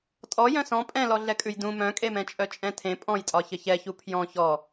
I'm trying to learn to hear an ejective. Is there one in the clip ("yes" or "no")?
yes